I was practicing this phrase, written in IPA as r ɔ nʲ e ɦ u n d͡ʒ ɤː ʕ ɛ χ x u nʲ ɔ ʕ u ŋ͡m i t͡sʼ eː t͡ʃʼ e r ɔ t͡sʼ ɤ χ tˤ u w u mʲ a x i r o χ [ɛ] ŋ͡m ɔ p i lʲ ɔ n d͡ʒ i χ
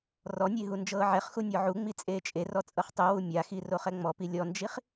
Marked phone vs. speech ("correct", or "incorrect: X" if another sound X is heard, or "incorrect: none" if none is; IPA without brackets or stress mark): correct